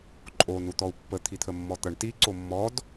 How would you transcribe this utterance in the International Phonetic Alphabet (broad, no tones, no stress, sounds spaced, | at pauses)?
ǃʼ o n u t̪ ɔ u̯ pː ə t̪ʰ i t̪ʰ ə mː ɔ t̪ ʌ ɳ t i ǀ o mː ɔ d